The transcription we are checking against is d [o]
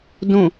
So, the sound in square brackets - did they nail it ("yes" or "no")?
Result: no